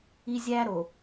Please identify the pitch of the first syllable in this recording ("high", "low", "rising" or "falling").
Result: high